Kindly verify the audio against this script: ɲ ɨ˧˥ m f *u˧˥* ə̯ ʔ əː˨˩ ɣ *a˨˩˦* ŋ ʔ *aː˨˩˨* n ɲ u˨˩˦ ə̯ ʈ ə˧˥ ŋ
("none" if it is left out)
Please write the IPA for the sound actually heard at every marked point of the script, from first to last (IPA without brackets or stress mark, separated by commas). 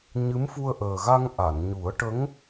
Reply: u˧, a˧, a˨˩˨